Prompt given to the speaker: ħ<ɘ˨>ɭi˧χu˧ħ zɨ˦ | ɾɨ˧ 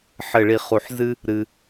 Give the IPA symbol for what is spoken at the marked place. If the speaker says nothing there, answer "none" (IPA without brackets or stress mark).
ɘ˦˨